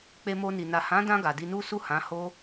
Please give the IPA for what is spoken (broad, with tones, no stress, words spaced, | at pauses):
k͡pe˧mo˧ni˨ na˨hã˨˦dã˧ ɡa˨di˧nu˦ su˦˨hã˨˦ ho˦